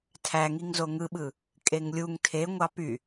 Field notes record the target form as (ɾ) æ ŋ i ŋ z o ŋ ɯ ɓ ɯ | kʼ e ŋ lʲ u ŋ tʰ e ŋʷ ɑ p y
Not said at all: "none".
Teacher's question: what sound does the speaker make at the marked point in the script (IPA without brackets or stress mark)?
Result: tʰ